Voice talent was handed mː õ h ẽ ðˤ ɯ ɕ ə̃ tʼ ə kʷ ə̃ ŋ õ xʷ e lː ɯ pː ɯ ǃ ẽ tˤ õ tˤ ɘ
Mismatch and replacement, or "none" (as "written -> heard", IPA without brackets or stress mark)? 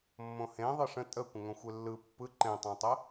ɕ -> ʂ